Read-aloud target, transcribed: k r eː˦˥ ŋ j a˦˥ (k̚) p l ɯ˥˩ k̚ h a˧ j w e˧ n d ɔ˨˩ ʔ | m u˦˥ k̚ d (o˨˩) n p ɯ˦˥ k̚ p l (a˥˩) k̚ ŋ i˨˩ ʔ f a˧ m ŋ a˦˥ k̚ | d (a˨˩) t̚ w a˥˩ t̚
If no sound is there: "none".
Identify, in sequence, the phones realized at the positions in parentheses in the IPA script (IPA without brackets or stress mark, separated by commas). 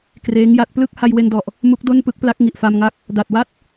t̚, o˥˩, a˦˥, a˨˩